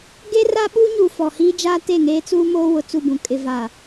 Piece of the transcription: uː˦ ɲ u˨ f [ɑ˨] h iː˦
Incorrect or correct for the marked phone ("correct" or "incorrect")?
incorrect